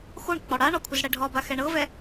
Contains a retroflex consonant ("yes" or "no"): yes